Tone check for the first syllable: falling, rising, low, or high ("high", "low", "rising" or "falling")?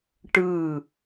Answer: falling